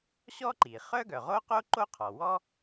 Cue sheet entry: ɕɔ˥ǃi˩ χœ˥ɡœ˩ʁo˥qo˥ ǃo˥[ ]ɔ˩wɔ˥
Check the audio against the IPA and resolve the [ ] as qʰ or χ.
qʰ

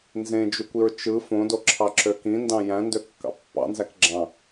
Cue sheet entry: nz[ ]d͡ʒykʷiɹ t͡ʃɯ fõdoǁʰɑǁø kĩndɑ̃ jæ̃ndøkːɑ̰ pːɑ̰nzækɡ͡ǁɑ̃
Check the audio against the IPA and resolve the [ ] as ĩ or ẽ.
ẽ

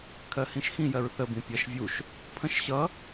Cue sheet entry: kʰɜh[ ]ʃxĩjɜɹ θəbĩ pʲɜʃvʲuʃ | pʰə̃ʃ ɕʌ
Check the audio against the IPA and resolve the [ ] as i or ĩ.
ĩ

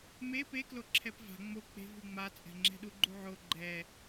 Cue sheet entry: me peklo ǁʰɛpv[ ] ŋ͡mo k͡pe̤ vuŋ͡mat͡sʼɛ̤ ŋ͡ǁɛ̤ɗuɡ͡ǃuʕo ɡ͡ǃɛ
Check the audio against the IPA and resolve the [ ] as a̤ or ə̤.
a̤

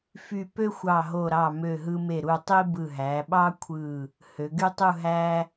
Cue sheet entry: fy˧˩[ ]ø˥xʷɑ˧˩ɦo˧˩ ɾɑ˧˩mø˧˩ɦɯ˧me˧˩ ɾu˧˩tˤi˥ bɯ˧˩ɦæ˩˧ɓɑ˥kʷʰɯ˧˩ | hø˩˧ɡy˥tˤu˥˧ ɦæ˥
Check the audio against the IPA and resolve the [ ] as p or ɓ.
p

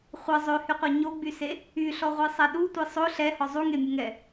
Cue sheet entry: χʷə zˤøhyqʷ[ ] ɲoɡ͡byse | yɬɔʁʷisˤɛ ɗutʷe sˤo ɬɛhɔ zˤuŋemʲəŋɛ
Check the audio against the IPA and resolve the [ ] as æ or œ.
œ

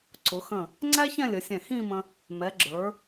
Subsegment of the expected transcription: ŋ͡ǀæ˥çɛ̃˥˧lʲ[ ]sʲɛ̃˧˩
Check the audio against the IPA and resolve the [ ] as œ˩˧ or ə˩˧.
ə˩˧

